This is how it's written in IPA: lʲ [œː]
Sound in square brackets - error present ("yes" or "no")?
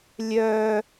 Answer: no